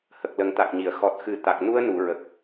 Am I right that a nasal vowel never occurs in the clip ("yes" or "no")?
yes